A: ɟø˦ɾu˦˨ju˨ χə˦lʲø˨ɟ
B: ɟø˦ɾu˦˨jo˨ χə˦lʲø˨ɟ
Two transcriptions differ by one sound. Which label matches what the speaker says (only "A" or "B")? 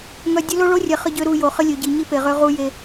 B